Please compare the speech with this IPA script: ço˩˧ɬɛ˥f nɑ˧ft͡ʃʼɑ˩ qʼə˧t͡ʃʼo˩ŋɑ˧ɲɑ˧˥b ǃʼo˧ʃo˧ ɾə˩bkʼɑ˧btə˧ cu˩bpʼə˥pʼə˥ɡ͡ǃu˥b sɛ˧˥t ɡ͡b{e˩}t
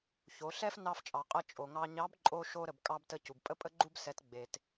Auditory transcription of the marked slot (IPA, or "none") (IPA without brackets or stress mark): e˩